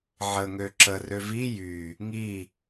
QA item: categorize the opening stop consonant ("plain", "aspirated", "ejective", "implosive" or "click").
click